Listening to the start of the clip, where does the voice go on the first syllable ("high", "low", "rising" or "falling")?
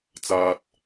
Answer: low